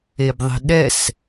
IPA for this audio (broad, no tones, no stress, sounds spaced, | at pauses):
e b ðˤ i̤ ɗ ɛ s